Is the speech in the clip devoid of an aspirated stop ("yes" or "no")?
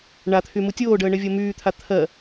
no